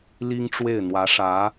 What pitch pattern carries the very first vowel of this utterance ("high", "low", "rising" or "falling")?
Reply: high